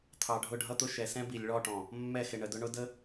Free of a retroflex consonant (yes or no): no